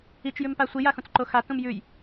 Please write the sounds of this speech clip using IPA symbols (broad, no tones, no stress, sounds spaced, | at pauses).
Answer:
i t͡ʃ j ʉ m p a sʷ i j a x ũ t͡s ǃ o x a t ũ m j ʉ j